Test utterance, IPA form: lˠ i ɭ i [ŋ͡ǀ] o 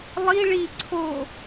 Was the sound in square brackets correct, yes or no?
no